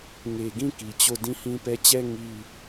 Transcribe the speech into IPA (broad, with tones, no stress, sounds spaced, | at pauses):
ŋ e˨ ɡ ĩ˦˨ k i˨ t͡ɕ o˦˨ d ĩ˦ h ĩ˦ p ɛ˦ t͡ɕ ɛ˦ ŋ i˦